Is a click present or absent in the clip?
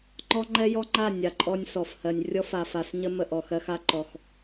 present